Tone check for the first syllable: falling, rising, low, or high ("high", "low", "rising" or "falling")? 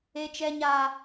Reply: high